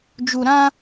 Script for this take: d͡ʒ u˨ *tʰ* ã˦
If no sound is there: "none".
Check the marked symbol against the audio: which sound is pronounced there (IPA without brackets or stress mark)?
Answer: ɾ